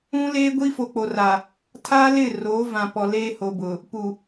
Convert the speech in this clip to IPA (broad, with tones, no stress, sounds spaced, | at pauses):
ũ˦ l eː˦ ɡʷ i˦ f o˨ k͡p o˨ r a˨ | tʰ a˦ l ɪ˦˨ r oː˨˦ v ã˨ p ɔ˨ l eː˦ h o˨ b ʊ˨ | p u˨